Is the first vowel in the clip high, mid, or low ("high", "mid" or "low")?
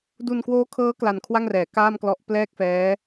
high